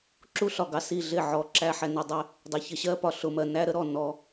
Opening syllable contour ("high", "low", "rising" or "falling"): high